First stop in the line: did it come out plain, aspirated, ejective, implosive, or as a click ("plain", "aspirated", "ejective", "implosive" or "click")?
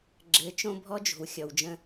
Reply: click